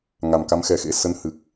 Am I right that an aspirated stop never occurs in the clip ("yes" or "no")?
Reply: yes